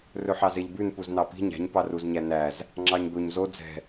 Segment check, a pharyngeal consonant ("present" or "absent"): present